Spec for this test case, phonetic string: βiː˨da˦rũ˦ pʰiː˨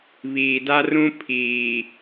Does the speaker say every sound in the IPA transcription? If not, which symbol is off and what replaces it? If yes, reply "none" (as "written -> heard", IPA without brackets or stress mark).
none